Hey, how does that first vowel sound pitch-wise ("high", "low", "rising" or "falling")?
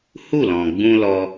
falling